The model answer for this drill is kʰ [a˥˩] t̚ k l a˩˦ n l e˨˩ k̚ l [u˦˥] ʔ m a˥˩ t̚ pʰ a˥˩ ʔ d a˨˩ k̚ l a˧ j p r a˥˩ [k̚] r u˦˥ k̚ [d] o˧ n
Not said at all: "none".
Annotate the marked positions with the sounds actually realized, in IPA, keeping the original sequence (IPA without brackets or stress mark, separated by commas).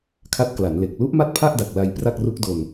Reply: a˦˥, u˦˥, k̚, d